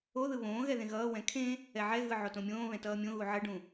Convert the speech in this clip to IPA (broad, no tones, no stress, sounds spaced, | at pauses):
o ð ɯ β õː ɣ ɛ ð ẽ ɣ ʌː w ɛ̃ kʰ ẽ | ɛ ʕ ɛ ɣ ɯ ʕ o t õ mʲ õː β ɛ̃ t ʌː mʲ õ ɣ u ʕ ʌ ɖ ũ